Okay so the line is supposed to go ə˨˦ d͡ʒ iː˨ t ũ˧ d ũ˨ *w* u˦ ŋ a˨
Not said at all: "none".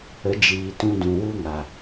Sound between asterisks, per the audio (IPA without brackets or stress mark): w